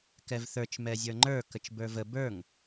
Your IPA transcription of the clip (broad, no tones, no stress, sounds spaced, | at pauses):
k ɛ v θ ə˞ t͡ʃ m ɛ zʲ ə˞ ŋ͡ǃ ə˞ k ə t͡ʃ b ə˞ v ə b ə˞ ŋ